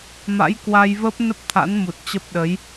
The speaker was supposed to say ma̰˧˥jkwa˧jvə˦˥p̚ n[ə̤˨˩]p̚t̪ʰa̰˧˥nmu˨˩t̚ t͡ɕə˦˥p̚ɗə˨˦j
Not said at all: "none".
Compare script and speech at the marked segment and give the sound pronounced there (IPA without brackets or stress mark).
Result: ə˦˥